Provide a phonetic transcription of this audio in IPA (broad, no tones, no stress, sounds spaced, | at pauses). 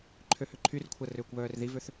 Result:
ǃʰ ø h ʏ ǃʰ y r kʷʰ ɐ r ʏː kʷ β œː r ð i v ø θ